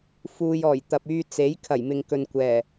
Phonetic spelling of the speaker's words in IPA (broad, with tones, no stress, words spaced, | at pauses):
fuː˨jɔː˨˩j t̪ɐ˨p̚yː˧t͡se˨˥j kʰɐ˨˩jmɪ˨ŋkɵ˨nkʷɛː˨˩